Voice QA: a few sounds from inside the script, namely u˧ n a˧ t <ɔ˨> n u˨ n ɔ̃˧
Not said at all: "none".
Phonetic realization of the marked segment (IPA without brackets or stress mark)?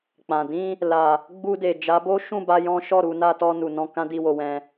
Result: ɔ˧